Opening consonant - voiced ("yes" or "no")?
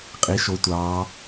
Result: no